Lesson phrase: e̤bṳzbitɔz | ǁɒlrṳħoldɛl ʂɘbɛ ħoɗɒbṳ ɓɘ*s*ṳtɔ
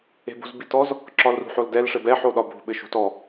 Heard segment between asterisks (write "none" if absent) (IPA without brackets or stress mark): ʃ